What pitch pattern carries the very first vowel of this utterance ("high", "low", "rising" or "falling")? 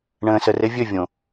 low